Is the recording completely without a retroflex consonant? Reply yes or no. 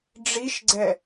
no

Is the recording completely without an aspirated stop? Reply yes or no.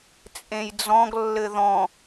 yes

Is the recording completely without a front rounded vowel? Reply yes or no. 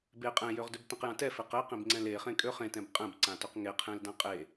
no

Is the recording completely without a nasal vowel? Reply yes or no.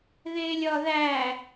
yes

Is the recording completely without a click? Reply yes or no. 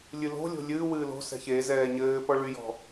yes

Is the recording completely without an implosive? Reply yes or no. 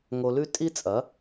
yes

